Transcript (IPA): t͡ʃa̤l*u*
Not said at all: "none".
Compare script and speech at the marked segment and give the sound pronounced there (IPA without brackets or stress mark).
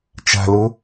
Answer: ʊ